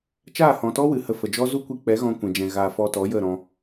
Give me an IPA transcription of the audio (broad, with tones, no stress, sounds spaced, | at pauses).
t͡ʃ aː˦˨ h ɔ̃˨ t ɔ˦ w ɨ˨ h ə˧ f ə˨ d͡ʒ ɔ˦ z u˦ kʷ i˧ k͡p ɛ˨˦ ɣ ɔ̃˧ kʷ ɛ̃˨ d͡ʒ ɛ̃˨ ɣ a˨ f ɔ˧ t ɔ˨˦ j ə˦˨ ɾ ɔ̃˧